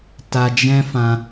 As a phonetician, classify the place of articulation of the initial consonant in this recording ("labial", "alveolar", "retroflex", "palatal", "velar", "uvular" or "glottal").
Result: alveolar